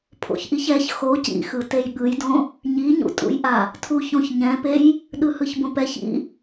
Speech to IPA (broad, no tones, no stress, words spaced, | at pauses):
pʰo̰çʔiçɛç xo cḭ xɯtejɠɯjdõ | ɲiɲṵtʼṵjʔa | tʰuçõç ɲɛ̃pej | ɗɯhɯçbõpɛç ḭ